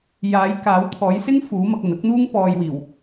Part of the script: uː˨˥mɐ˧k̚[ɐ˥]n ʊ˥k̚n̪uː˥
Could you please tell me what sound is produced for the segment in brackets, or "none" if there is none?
ɐ˨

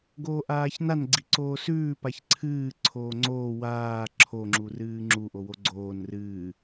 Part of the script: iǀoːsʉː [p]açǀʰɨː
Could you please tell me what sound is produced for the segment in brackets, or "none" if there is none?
p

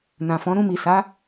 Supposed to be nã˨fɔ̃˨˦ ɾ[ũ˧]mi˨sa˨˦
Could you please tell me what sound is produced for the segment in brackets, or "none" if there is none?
ũ˧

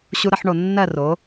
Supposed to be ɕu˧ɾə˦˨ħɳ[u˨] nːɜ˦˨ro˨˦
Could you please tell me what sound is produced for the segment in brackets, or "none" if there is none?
o˨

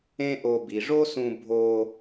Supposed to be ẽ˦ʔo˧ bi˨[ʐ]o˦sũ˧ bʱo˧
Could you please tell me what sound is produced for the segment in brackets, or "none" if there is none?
ʐ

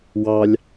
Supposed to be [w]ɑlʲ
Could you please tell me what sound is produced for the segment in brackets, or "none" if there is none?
w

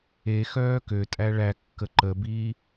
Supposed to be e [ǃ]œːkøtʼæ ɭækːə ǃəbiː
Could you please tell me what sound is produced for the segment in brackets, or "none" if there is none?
x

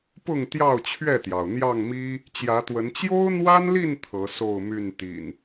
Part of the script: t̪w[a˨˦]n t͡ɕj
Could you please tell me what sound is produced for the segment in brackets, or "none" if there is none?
ə˨˦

